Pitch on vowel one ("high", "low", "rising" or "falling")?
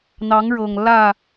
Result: rising